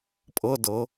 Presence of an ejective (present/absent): present